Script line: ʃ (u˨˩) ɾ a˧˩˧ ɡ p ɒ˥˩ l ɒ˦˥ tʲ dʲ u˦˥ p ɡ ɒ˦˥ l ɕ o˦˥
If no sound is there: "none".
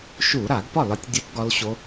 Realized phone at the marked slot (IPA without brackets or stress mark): u˧˩˧